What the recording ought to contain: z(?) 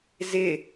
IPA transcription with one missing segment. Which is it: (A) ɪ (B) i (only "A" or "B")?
A